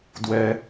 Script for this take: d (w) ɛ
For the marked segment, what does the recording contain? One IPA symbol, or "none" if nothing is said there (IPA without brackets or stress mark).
w